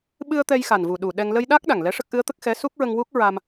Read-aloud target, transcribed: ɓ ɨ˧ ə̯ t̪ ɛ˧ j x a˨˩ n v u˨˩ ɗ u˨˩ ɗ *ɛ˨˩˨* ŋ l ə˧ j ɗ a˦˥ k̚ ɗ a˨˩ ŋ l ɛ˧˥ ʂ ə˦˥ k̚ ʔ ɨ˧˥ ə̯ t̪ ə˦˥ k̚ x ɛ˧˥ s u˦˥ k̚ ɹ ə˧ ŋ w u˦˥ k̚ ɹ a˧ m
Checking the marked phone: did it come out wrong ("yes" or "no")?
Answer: yes